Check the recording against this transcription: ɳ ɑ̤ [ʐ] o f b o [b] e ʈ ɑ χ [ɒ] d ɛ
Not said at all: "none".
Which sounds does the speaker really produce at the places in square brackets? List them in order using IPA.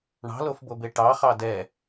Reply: l, b, ɑ

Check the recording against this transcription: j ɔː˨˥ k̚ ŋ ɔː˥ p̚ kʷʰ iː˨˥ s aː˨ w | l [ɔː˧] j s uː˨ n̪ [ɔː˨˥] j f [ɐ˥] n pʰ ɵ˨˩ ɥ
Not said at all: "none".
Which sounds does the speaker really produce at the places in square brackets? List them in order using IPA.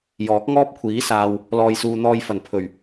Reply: ɔː˨, ɔː˧, ɐ˨˩

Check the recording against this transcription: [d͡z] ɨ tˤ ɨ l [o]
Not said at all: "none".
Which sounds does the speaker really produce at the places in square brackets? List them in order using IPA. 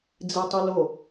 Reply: d͡z, o

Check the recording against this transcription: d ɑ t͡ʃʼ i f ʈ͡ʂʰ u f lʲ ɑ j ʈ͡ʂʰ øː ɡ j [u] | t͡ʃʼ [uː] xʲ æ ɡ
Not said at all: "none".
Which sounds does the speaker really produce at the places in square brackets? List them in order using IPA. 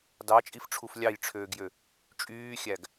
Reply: ø, yː

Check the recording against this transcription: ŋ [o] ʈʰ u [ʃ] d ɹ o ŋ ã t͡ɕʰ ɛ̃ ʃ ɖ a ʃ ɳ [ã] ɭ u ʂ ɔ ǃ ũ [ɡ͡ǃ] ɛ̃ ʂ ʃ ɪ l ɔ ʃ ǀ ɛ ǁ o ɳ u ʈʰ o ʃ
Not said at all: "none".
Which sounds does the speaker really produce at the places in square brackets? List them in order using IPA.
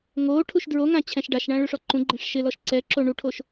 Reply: oː, ʃ, ã, ɡ͡ǃ

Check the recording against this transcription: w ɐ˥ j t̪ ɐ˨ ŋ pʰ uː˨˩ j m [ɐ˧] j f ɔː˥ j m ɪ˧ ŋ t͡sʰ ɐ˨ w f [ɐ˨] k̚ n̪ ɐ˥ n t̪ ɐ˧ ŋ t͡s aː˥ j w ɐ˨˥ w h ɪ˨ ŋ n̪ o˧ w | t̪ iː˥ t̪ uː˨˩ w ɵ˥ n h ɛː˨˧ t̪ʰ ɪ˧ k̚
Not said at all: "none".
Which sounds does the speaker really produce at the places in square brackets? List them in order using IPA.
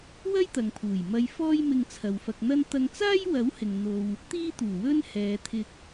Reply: ɐ˧, ɐ˧

